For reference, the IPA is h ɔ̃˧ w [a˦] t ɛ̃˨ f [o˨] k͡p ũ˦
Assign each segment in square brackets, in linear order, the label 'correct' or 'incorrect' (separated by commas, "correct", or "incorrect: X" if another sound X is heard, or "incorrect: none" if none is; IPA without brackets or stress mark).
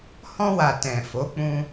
incorrect: a˨, incorrect: o˨˦